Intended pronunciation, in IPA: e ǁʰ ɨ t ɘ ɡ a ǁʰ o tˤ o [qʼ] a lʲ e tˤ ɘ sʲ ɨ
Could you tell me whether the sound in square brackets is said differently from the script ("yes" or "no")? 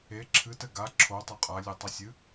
no